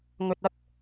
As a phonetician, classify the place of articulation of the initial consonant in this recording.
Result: velar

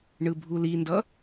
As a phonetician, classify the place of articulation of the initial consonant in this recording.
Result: retroflex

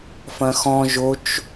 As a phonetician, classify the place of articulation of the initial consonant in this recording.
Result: labial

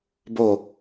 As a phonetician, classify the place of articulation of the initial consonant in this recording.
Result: labial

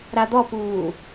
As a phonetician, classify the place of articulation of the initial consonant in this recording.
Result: alveolar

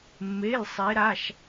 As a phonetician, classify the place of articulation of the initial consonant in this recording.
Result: labial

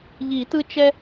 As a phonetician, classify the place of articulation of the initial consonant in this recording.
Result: palatal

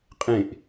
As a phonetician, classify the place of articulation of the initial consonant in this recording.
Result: uvular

